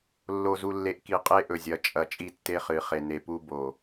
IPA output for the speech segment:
lː o˨ z u˨ lː e˨ ʔ k i˨ qʼ e˦ ʔ ɵ˨ zʲ ɐ˨ t͡ʃʼ ɐ˨ t͡ʃʼ i˦ tː e˦ χ ɨ˨˦ χ e˨ n e˨ p u˦ b o˨

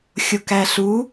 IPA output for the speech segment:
xʲ o k æ ɬ u

